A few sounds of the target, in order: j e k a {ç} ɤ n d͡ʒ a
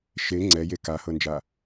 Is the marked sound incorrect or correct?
incorrect